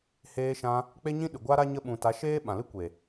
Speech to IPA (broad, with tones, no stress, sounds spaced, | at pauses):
h eː˧ ʃ ã˧ | k͡p e˦ ɲ ĩ˦ ɗ ɨ˨ ɡʷ a˦ ɾ a˦ ɲ ə˦ ɓ ũ˧ t a˨˦ ʃ eː˦ ɓ ã˨ l ɨ˦ kʷ e˨